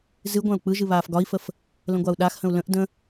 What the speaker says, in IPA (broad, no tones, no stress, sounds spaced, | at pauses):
z ɨ ɡʷ ã u̯ k͡p ɯ ʒ ɨ β aː f ɡ ɒ i̯ f ə f | l ə̃ ɡʷ a u̯ ɗ a x h ə̃ u̯ l ə̃ ʔ d ə̃